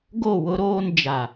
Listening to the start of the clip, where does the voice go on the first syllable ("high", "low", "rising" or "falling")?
falling